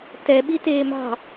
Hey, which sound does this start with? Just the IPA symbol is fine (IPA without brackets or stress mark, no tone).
t